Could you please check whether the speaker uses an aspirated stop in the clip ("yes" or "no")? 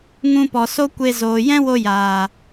no